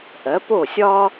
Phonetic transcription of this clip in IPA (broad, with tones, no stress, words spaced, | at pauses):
ʔɜ˩˥po˥˩sʲɒ˥